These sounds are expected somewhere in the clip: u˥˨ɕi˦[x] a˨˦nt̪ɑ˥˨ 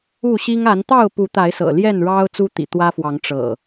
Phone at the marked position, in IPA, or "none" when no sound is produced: ŋ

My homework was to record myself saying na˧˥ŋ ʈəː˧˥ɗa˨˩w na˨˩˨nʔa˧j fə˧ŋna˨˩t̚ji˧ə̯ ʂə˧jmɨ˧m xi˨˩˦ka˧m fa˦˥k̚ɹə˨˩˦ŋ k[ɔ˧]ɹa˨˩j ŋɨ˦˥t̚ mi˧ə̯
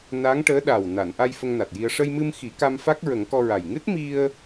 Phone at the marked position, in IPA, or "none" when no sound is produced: ɔ˧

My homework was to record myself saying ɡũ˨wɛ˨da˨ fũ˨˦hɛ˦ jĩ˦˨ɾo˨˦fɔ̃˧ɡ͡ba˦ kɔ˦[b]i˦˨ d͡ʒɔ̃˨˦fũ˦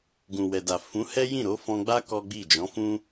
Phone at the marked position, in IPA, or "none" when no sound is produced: ɡ͡b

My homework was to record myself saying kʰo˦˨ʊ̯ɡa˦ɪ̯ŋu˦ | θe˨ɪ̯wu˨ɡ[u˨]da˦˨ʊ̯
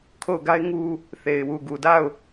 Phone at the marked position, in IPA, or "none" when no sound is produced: u˨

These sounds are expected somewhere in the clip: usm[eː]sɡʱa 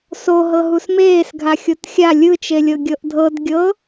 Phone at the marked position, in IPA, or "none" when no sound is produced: eː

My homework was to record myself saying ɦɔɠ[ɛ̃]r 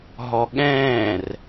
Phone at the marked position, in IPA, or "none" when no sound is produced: ɛ̃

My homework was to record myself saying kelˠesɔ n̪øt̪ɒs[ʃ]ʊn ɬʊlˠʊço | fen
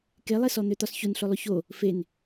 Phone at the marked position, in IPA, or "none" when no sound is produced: ç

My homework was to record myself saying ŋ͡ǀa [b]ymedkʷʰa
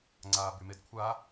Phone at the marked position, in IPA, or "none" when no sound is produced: b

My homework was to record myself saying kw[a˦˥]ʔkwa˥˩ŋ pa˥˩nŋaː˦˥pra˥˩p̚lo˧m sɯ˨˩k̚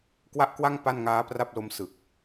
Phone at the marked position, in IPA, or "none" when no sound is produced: a˥˩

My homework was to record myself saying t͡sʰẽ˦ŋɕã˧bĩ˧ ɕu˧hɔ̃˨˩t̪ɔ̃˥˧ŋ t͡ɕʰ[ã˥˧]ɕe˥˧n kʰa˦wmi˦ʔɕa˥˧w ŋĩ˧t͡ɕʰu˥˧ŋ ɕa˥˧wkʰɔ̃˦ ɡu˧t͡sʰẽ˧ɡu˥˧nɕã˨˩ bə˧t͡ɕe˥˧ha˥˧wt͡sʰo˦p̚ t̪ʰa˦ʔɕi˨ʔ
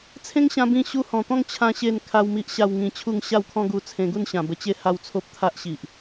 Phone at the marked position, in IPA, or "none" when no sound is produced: ã˥˧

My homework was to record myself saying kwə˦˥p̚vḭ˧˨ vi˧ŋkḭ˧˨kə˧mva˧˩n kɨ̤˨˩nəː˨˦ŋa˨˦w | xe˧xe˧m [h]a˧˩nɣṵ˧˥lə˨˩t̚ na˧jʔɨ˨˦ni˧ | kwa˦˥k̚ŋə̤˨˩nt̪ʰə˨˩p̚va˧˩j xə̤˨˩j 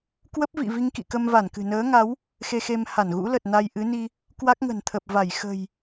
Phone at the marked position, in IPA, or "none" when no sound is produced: h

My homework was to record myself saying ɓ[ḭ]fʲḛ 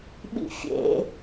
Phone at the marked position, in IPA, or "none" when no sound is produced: ḭ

